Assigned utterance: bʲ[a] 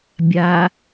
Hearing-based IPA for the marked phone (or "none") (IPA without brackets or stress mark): a